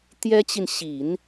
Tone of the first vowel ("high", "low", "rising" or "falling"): high